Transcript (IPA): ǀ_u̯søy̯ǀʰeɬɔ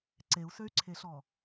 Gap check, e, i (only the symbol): e